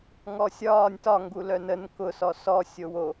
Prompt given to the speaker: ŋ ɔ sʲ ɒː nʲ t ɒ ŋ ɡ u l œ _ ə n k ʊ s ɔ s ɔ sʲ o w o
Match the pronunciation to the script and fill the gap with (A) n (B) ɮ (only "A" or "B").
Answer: A